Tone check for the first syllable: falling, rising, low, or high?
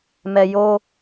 low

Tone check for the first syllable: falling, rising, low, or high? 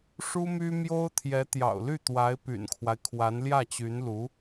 high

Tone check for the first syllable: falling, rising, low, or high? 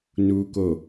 high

